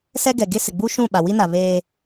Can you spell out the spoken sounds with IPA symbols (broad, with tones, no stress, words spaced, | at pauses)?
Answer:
sɛ˦ɡɛ˨ ɡe˦sɪ˨ ɡ͡bu˦ʃũ˦˨ ɓa˨wi˦ na˨βeː˦